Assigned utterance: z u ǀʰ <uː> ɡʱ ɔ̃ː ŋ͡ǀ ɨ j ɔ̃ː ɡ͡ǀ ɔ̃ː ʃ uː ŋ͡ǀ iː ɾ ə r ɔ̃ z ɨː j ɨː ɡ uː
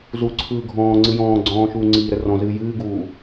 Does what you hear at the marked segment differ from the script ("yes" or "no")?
yes